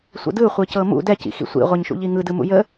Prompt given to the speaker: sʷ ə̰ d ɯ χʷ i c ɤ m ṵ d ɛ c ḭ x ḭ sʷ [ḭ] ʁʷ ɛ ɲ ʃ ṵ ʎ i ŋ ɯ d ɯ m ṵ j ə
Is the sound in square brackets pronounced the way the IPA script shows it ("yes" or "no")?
yes